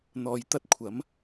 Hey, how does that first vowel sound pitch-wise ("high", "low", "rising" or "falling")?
low